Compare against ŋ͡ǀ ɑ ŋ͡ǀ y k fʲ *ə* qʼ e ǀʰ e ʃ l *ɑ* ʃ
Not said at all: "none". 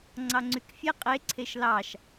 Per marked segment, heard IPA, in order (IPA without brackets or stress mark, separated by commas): ɛ, ɑ